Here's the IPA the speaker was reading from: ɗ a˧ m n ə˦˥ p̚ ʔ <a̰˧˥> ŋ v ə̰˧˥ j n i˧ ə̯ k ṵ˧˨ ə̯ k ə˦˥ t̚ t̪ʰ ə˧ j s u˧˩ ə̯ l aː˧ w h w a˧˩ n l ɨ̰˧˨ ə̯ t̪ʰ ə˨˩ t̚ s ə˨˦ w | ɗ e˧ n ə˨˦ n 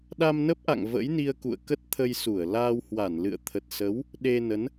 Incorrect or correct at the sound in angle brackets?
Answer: incorrect: a̰˧˨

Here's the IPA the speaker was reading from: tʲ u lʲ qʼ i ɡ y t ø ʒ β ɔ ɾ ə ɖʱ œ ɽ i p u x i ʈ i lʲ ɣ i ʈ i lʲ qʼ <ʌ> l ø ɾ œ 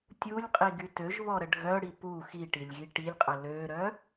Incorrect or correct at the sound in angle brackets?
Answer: incorrect: ə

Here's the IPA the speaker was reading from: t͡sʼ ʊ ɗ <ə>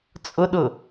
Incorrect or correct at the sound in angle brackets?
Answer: incorrect: ʊ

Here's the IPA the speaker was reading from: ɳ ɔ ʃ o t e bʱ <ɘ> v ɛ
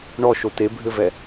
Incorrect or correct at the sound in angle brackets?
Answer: correct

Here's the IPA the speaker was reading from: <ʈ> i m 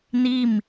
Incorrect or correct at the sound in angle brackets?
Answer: incorrect: n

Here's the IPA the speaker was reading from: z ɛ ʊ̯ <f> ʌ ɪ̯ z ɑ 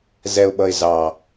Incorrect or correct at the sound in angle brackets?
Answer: incorrect: ɓ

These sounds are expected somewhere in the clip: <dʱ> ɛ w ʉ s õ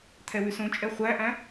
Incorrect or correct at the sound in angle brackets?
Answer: incorrect: t̪ʰ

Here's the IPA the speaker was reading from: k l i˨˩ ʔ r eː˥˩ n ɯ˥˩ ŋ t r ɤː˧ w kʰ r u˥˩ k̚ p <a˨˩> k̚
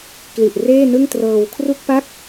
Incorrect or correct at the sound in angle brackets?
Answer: incorrect: a˥˩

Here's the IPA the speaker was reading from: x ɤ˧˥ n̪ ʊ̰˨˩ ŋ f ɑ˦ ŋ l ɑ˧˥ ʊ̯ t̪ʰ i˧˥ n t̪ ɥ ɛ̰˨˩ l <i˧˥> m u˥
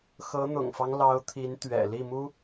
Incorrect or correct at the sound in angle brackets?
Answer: incorrect: i˥˩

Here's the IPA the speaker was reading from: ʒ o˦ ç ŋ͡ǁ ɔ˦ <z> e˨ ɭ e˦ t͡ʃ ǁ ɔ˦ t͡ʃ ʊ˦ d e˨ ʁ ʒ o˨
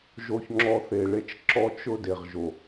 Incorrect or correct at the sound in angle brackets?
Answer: incorrect: θ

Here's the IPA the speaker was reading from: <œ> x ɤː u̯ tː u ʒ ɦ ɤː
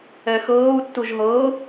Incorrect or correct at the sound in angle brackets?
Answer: incorrect: ɛ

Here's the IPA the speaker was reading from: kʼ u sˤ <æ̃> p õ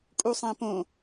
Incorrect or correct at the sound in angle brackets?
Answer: correct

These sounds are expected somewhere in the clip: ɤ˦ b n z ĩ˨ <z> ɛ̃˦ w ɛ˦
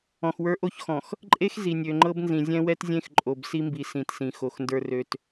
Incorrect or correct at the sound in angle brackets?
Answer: incorrect: zʲ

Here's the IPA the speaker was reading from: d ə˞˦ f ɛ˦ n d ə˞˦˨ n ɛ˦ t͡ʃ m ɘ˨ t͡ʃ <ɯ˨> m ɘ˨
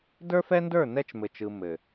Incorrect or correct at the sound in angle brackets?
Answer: correct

